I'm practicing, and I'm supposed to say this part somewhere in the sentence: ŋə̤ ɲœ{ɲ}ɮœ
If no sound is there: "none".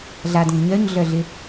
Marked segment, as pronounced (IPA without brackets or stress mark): ɲ